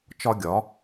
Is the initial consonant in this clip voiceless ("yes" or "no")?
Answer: yes